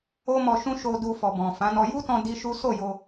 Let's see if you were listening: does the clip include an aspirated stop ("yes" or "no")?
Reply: no